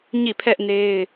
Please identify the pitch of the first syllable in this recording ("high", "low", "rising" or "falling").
falling